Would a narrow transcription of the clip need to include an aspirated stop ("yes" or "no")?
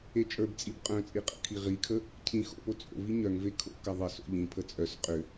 yes